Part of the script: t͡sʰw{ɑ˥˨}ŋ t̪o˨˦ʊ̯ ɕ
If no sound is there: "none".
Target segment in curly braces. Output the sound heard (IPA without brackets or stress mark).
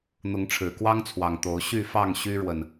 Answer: ɑ˨˩